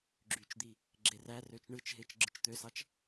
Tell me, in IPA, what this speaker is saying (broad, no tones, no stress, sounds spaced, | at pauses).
ɡ͡ǁ y t͡ʃ d̪ i | ɡ͡ǁ e r æ r ø t͡ʃ ɳ ɯ t͡ʃ ɦ e t͡ʃ ɡ͡ǁ ɯ t͡ʃ t̪ ø s ɑ t͡ʃ